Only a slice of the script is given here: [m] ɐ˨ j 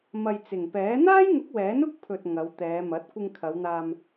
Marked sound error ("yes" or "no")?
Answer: no